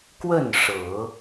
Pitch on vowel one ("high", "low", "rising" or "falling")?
falling